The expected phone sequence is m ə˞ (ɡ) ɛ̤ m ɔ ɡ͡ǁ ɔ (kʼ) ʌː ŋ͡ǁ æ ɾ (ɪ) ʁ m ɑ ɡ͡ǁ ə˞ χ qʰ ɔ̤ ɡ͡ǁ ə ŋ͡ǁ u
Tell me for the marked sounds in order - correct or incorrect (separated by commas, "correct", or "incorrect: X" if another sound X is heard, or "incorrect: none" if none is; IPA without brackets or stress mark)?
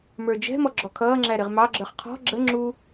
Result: incorrect: d͡ʒ, incorrect: kʰ, correct